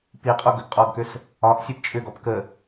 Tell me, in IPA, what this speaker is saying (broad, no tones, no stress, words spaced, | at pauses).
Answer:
piqʼo ɡʏɡqʼɔɡkʏs | ɒʔ sʲept͡ʃʼʏɡɔp kə